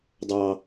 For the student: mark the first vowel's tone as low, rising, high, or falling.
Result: high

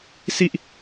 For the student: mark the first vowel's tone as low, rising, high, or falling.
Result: low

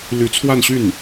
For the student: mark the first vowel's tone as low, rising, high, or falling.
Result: rising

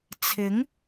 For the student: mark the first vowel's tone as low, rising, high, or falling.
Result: rising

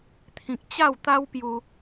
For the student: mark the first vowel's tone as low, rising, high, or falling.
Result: low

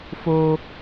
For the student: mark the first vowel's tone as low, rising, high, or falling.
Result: high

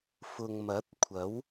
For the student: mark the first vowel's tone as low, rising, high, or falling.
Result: low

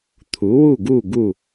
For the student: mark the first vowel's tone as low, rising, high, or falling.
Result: rising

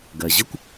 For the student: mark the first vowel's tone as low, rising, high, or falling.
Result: low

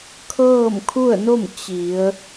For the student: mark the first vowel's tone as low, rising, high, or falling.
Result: falling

